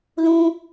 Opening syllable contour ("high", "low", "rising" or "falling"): high